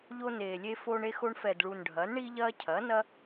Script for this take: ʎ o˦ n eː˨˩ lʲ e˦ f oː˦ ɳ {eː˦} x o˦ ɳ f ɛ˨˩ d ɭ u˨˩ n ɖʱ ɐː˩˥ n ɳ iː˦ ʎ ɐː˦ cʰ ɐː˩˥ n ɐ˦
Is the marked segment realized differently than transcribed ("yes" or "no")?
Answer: yes